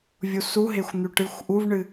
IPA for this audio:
vʲ u s u ɦ e xʷ n̪ ʉ ʈ ɨ xʷ ʔ u v ɳ ɨ

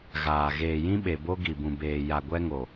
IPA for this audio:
ɣ aː˨ ɣ eː˨ j ĩ˦ ɓ e˨ b o˦ ɡ i˨ b ũ˨ b eː˨ j a˨ ɡʷ ɛ˦ ŋ o˨

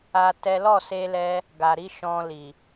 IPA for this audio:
a˧ t ɛ˦ l ɔ˦˨ s e˧ l ɛ˧ | ɡ a˨ ɾ i˨˦ ʃ ɔ̃˧ l i˨

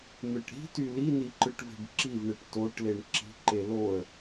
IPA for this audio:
n̪ ɯ ʈ ɾ i̤ t y l i n i ǃ ɯ ʈ v e̤ b ǁ i v ɳ e ʈ t o ʈ l e ɳ ǁ i̤ ǃ e l o ə̯

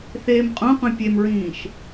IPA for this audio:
θ eː m qʼ õ qʷ ẽ pʲ e m ɹ ĩː ʃ

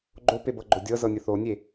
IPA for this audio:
ɡ͡ǃ o p e b ɤ ɡ͡ǃ o dʲ ɤ z ɤ nʲ ə θ o nʲ e

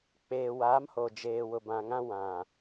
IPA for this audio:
k͡p eː˨ w aː˨˦ m h o˨ d͡ʒ eː˨ w ʊ˨ b ã˨ ŋ ã˦ w ã˨

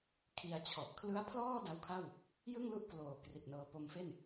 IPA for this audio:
kʰ i˧ a̯ t͡ɕʰ ɔ˨˩ ʔ kʰ l ɯ˦˥ a̯ pʰ l ɔː˥˩ d a˦˥ w kʰ a˥˩ w | j ɯ˥˩ ŋ l u˥˩ ʔ k l oː˨˩ k r i˨˩ t̚ n ɤː˧ p o˧ m f e˥˩ n

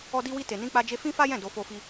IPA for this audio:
ɔ˦ d i˦ w i˦ t e˧ n ĩ˦ k͡p a˦ d͡ʒ e˦ f ĩ˦ f a˦ j ɛ̃˦˨ d o˧ f o˧ f i˧

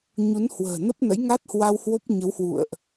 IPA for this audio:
ɲ u˨˦ n h w ə̤ː˨˩ n ə˦˥ p̚ n ə̰˧˥ j ŋ a˦˥ t̚ h w a˧ w h w o˦˥ p̚ ɲ ə˨˦ w h w ṵ˧˨ ə̯ ʔ

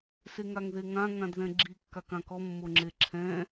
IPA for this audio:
s e ŋ a ŋ ð e ŋ ã ŋ ã d ð ɛ̃ ɡ͡ǁ i kː a k ã k ɔ mː o ŋ͡ǁ e ǁʰ ɛ̃

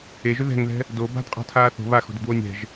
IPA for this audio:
e ʒ ʏ ð ɛ̤ ŋ ð ɛ̤ | d o b a̤ d qʼ a̤ tʰ aː θ o̤ β a x o̤ d ɘ d w o nʲ ɛ̤ ʒ

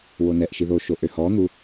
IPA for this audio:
w o n ɛ ʔ ʃ i ð o ʃ o ʔ ø h ɔ n̪ u

